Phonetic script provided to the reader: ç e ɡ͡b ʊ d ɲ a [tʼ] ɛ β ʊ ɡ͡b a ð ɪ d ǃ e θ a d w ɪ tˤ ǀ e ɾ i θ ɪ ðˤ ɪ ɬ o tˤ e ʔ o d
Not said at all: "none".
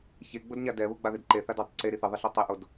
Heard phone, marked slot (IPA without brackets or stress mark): d